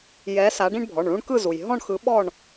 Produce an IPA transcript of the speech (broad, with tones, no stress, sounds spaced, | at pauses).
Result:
j ɛ˨˦ s a˨˦ ɖ ĩ˦ ɳ bʱ ɔ˩˧˩ ɳ ɭ ũ˦ ɳ k ɯ˦˨ z u˩ j ɦ ɔ̃˦˨ ɳ x ɯ˨˦ ɓ ɔ˦˨ ɳ